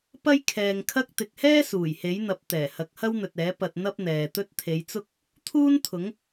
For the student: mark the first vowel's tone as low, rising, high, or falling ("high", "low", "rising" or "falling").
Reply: high